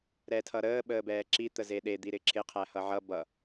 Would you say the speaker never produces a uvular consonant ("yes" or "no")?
no